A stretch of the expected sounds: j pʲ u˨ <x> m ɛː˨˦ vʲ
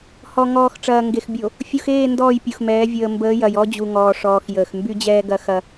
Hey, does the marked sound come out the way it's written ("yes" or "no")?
yes